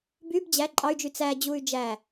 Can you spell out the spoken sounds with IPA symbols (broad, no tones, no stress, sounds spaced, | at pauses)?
b y b d͡ʑ æ ǃʼ ɑ y̯ d͡ʒ y t͡s æ d͡ʑ u y̯ d͡ʒ æ